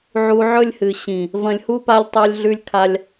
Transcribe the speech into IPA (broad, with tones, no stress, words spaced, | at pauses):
ʕu˧ʕɵ˦lʲhɨ˨ ɕĩ˨ | vɐ̃˧lʲhu˦ pa˦lʲ tˤa˦lʲɮʉ˦lʲ kʰa˦lʲ